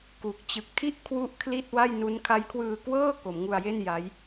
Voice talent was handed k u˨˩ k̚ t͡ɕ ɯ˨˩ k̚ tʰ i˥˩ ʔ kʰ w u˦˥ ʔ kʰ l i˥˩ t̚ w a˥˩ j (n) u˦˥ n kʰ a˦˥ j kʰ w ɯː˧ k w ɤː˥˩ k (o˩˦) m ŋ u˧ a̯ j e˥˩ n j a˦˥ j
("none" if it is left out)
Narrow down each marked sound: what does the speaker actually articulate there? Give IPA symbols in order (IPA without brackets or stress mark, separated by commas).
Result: n, o˩˦